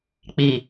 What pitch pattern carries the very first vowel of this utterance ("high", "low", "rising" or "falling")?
low